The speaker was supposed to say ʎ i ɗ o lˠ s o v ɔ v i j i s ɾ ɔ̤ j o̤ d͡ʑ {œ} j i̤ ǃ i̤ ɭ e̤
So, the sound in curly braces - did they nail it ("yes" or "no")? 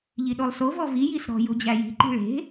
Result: no